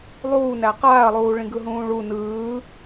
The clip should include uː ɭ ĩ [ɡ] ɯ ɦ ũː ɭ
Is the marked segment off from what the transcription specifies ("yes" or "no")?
no